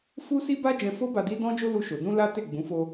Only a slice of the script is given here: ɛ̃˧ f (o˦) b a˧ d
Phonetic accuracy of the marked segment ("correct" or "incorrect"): correct